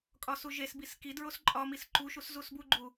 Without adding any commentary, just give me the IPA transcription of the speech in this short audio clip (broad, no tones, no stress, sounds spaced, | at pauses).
kʼ ɒ s u ʒ e s b i s k i d ɹ o s ǃʼ ɒ m i s ǃ u ʃ u s z u s b u ɡ͡ǃ u